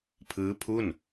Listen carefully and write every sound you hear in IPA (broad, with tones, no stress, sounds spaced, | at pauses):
pʰ ɯː˦˥ pʰ u˥˩ n